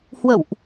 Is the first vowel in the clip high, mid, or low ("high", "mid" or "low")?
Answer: mid